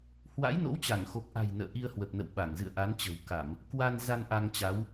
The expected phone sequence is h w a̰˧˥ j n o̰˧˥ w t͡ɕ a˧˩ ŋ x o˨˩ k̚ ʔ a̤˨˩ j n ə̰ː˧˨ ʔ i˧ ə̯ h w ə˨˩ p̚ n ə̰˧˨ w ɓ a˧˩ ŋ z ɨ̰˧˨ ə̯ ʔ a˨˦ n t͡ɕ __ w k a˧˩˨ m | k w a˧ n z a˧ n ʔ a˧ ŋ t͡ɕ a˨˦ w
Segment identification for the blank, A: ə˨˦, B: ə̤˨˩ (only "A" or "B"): B